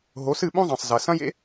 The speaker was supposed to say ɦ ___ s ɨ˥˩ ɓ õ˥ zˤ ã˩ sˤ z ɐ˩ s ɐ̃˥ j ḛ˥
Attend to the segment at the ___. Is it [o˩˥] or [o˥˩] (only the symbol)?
o˩˥